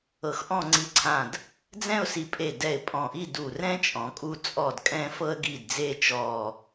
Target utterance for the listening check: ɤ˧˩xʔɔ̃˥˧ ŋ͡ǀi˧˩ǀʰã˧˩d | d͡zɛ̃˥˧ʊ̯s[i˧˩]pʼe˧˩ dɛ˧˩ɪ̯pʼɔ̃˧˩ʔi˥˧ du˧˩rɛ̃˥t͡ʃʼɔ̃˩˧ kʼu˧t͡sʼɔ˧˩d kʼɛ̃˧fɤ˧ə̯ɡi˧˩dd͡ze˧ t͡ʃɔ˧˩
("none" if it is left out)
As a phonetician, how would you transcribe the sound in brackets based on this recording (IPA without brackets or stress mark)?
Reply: i˧˩